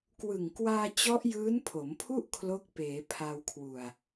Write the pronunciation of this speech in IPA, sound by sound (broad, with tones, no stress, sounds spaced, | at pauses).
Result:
k w ɯ˨˩ ŋ k w aː˧ t͡ɕ ɔ˦˥ ʔ j ɯː˦˥ n pʰ o˩˦ m pʰ u˥˩ ʔ kʰ l o˦˥ k̚ p eː˩˦ pʰ a˧ w kʰ w u˨˩ a̯